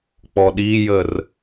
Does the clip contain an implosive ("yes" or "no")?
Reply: yes